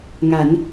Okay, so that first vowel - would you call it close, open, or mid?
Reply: open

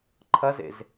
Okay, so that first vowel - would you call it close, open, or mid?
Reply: open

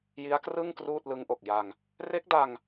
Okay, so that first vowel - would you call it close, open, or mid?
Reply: close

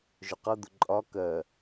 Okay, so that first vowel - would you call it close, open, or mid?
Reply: close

